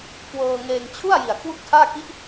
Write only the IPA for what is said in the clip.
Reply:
k w ɤː˧ ŋ eː˧ ŋ t͡ɕʰ u˥˩ a̯ j i˨˩ a̯ kʰ w u˥˩ k̚ tʰ aː˥˩ k i˦˥ ʔ

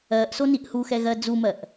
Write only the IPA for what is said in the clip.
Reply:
ɜ ʔ s o n i ʔ h u x ɛ ɣ ɜ d͡z u m ɜ ʔ

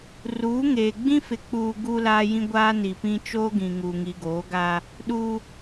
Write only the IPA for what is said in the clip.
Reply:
r uː˨˦ ŋ eː˨ ɡ͡b ĩ˦ f ɪ˨ k͡p uː˨ ɡ uː˦ l aː˦ j ĩ˦ ɡʷ aː˦ n i˨ p ĩ˦ t͡ʃ oː˦ ɡ ĩ˨ ŋ uː˨ ŋ i˨ ɡ oː˨˦ ɡ aː˦ | ɗ uː˦

